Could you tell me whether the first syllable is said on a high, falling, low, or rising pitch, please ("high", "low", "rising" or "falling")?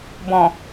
low